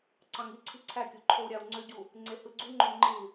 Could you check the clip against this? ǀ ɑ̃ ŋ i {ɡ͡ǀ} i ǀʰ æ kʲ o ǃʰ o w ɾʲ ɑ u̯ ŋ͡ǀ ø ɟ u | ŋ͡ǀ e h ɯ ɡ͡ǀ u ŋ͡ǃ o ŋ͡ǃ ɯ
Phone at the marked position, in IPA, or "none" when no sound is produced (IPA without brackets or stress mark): ǀʰ